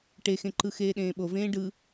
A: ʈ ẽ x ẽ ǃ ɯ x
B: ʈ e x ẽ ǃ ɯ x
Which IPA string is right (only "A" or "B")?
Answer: B